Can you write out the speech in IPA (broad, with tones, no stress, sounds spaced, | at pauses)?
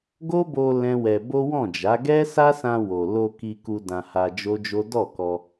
ɡ o˦ b o˧ l ɛ̃˦ w ɛ˧ b o˦ w ɔ̃˦˨ d͡ʒ a˨˦ ɡ ɛ˦ s a˦ s ã˧ w o˨ l o˧ k i˧ k u˧ d ã˧ h a˧ d͡ʒ o˦ d͡ʒ o˦ d ɔ˦˨ k ɔ˧